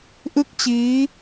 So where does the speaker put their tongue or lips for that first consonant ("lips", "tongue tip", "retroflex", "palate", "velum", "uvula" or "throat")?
throat